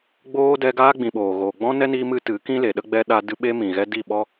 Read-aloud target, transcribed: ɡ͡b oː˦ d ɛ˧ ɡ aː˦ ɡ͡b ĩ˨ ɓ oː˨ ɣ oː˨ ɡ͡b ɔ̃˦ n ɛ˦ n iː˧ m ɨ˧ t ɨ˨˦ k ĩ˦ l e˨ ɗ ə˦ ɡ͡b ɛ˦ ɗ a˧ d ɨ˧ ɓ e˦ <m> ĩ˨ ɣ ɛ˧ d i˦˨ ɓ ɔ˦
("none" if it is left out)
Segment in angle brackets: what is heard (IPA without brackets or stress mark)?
m